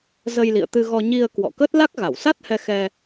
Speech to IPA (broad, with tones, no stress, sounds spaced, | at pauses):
z ə˧ j l ḭ˧˨ ə̯ t̪ ɨ˧ ɣ ɔ˧ ɲ i˧ ə̯ k w ɔ̰˧˨ k ə˦˥ t̚ l a˦˥ k̚ ɣ a˧˩ w s a˦˥ t̚ h ɛ˧ x ɛ˧